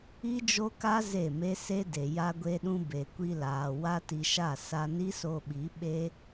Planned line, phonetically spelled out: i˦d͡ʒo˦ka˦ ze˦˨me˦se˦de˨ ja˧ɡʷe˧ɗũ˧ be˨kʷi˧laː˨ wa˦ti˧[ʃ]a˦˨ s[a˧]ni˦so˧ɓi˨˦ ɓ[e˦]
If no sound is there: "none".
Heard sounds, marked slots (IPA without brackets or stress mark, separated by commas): ʃ, a˧, e˦